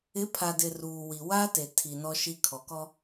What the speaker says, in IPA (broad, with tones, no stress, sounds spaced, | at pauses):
ɪ˨˦ pʰ a˨ d ɪ˨ r uː˨ w i˨ w a˦ t e˨ tʰ i˨ n ɔ˨ ʃ i˨ kʰ ɔ˨ k ɔ˦